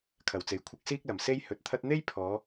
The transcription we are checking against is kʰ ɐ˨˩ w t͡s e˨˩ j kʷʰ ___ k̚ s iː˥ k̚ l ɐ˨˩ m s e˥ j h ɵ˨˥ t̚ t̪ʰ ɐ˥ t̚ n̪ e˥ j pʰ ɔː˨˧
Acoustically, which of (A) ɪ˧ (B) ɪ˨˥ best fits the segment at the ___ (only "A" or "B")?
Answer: B